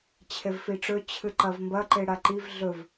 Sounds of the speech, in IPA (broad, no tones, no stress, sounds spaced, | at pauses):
t͡ɕʰ e v f i ʈ͡ʂ ɵ t͡ɕʰ ɨ ǃ ɐ v m b ɐ ǃ e ɽ a ǃ i v ɮ ɵ v